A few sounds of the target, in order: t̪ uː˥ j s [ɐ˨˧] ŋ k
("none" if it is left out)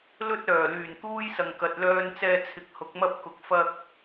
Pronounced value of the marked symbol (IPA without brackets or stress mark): ɐ˨